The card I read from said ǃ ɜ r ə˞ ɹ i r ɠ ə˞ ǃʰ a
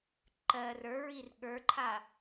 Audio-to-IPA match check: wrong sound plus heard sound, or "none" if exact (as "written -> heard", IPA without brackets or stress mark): none